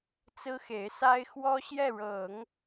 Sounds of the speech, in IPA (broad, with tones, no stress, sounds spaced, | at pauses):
t͡s ɹ̩˥ x e˧˥ ɪ̯ s a˥ ɪ̯ x w ɔ˥ ɕ j ɛ˥˩ ɻ ɤ˨˩˦ ŋ